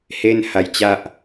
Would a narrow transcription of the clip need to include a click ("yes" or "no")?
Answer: no